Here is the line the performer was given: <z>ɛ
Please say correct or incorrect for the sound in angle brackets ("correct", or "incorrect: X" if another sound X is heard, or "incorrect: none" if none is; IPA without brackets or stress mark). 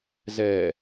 correct